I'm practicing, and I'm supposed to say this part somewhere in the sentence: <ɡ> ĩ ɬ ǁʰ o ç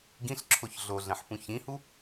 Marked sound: correct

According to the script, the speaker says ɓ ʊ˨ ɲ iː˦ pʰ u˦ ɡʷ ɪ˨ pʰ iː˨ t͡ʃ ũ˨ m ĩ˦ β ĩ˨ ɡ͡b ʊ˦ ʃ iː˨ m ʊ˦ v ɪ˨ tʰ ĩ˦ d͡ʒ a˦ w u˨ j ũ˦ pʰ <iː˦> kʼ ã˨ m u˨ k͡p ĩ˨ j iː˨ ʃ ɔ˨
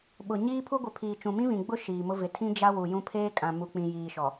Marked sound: incorrect: eː˦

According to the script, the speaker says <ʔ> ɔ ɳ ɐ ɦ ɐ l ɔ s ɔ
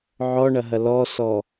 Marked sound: incorrect: ʕ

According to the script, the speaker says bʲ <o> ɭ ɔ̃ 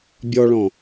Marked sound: incorrect: ɔ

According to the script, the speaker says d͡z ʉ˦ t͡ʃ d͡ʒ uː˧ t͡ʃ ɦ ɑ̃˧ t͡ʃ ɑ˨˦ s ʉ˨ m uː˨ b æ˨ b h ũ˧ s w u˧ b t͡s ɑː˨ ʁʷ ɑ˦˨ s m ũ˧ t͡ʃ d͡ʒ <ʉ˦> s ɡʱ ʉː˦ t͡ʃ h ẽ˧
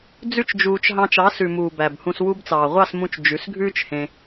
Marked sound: incorrect: ʉ˨˦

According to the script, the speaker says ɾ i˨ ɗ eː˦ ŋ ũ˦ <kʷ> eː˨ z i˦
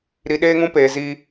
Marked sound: incorrect: p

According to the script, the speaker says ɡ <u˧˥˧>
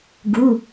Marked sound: correct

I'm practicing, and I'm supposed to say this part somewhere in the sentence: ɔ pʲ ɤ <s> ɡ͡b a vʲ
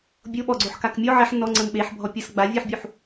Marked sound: correct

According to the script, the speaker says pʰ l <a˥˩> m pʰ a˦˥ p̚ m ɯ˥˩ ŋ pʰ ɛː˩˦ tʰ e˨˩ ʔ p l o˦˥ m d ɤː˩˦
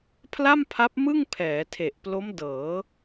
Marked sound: correct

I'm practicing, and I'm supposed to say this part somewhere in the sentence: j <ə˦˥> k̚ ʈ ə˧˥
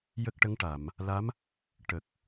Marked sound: correct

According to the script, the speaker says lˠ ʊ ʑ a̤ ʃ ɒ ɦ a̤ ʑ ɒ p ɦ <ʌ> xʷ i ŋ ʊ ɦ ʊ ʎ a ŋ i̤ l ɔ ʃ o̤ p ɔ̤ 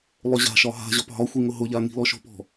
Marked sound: incorrect: ɒ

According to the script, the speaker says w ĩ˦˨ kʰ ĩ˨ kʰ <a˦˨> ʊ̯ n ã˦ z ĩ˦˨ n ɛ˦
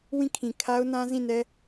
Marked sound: incorrect: a˦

